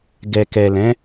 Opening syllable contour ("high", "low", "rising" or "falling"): low